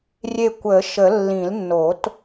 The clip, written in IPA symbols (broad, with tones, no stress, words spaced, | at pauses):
rʲe˦˨kʷə˨˩˦ʃə˨˩˦ lːĩ˨˩˦lnːo˨˩˦t